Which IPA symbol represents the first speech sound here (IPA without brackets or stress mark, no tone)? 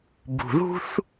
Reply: b